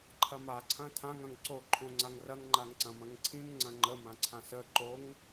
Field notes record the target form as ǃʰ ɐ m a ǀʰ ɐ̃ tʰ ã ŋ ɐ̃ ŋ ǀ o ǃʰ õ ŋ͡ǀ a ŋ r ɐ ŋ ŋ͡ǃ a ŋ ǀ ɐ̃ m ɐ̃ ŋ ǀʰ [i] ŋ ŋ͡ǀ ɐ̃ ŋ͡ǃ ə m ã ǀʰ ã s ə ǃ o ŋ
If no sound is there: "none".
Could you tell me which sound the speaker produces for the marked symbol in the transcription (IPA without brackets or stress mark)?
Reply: ĩ